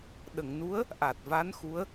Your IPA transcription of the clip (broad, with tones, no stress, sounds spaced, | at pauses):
ɗ ə˨˩˨ ŋ n u˧˥ ə̯ | ʔ a˨˩ t̚ v a˧˥ n x u˧˥ ə̯